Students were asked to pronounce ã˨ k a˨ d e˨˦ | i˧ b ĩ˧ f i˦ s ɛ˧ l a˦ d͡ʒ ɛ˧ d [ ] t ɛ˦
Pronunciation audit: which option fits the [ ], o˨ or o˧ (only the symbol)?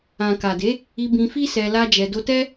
o˧